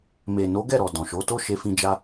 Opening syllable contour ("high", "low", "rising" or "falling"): low